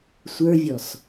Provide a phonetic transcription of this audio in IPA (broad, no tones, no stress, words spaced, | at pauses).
sʷə˞vʲɔs